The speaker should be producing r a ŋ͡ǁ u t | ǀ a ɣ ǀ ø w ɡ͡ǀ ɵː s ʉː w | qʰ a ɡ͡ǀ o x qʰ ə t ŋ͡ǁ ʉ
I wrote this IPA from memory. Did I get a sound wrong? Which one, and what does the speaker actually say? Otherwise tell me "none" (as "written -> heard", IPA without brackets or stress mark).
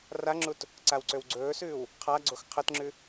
ɣ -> w